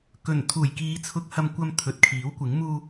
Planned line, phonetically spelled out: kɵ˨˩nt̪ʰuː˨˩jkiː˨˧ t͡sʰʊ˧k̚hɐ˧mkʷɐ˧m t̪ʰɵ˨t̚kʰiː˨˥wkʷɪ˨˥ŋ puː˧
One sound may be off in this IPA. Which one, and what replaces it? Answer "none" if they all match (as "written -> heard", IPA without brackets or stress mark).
p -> m